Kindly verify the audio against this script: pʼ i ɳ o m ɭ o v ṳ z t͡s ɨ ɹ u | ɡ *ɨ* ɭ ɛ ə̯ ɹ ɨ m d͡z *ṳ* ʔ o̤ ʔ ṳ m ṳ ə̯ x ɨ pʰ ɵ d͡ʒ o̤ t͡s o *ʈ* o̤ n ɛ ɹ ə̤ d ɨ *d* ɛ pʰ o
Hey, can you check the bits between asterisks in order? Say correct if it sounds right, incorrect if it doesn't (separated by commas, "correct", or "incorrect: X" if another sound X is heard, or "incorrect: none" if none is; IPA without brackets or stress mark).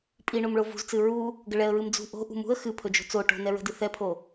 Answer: incorrect: ə, correct, correct, incorrect: θ